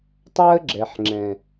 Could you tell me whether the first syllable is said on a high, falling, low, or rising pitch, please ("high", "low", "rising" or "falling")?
high